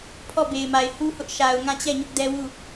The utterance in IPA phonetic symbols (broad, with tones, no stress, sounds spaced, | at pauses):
pʰ ɔ˦˨ b e˨ ɪ̯ m a˨ ɪ̯ h u˦ h ʊ˦ ʔ ʃ a˨ ʊ̯ ŋ ã˦˨ t͡ɕ ɛ˦˨ ɲ ʊ˦ ʔ d ɛ˦ w u˦˨